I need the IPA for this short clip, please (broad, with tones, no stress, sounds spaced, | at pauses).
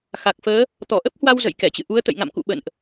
x a˨˩ k̚ f əː˨˦ | t̪ ɔ˧˩ ʔ ə˦˥ p̚ h w a˧ w z ə̰˧˨ j k ɛ˧˩ t͡ɕ ɨ̰˧˨ ʔ u˨˦ ə̯ t̪ ə̰˧˨ j ŋ a̰˧˨ m k ṵ˧˨ ɓ ə̰˧˨ n ʔ